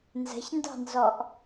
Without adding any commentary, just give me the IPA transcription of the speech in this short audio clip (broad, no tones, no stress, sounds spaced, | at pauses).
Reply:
n z ə̤ ç n d ɑ̤ n z ɔ ʔ